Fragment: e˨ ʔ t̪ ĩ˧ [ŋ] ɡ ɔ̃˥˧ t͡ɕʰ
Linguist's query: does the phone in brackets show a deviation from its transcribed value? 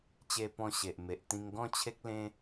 no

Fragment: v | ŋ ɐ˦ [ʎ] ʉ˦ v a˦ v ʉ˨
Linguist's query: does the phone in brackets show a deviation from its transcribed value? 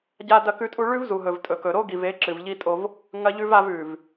no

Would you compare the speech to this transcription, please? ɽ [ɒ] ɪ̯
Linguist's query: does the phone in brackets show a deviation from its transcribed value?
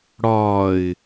no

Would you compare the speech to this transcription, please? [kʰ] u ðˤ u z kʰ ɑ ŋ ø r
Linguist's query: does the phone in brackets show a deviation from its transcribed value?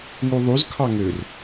yes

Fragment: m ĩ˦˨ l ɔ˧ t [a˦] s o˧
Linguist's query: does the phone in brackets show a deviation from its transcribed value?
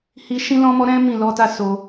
no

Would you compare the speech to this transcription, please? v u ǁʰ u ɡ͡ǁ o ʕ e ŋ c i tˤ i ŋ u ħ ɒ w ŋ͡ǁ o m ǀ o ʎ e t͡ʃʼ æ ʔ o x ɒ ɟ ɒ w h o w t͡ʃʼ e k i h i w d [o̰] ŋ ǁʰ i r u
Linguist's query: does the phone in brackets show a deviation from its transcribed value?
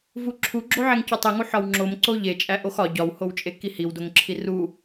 yes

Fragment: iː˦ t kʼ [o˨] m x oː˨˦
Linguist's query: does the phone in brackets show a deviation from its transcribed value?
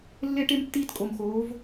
no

